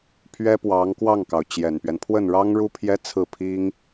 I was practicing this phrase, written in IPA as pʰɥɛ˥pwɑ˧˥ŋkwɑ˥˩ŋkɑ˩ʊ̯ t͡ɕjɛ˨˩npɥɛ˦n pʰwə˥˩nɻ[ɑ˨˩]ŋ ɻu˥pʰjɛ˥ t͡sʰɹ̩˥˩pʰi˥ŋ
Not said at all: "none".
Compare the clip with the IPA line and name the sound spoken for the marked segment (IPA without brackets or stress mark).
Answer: ɑ˥